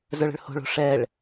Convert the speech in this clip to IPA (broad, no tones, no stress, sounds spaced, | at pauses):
z ə˞ ɭ ə̤ ɭ h o̤ ɭ o̤ ʂ ɛ ɭ